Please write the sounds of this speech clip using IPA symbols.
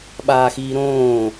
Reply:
ɓaːxiːɾõː

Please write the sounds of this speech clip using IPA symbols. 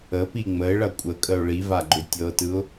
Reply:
əpi ŋ͡məɪ̯ɭɐ kʷʼəkʼəʊ̯ ɭivaɡ͡ǃʏ tʲɤtɯʊ̯

